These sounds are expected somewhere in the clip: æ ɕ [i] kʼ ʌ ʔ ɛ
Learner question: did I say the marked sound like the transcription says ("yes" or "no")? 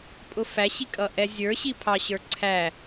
yes